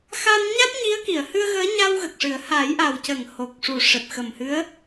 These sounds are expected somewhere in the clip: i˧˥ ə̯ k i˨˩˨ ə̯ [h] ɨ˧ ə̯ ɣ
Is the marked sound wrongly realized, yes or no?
no